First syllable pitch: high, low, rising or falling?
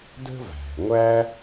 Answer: high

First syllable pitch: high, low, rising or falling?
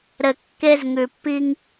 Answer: low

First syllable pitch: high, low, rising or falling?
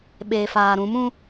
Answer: low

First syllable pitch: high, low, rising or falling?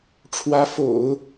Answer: rising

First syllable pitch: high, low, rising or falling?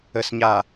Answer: low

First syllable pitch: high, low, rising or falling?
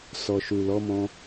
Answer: low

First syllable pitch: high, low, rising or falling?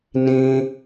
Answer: high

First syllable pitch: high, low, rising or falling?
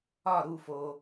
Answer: falling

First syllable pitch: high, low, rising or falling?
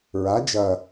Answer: rising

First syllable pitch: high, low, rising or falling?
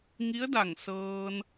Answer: rising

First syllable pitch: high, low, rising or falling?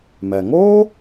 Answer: low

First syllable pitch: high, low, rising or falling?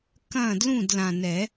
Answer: falling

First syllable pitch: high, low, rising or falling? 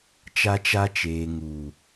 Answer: high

